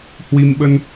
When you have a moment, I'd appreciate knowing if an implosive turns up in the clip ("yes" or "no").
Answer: yes